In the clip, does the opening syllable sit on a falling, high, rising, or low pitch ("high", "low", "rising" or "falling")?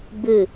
falling